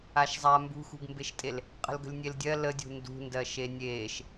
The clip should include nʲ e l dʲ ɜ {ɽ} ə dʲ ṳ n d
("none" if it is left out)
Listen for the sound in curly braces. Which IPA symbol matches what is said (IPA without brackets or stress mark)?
l